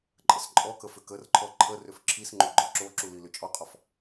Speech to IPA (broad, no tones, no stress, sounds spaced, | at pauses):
ǃʼ ə s ǃʼ ɔ k ə f ʏ k ə r ǃʰ ɔ ǃʰ ə r ʏ f ǁʰ i s ŋ͡ǃ o ɡ͡ǃ ɔ ǁ o ǁ u l i l ʏ t͡ʃʼ ɔ qʼ ɔ f